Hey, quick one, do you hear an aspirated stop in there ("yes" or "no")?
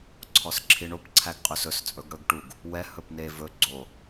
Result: yes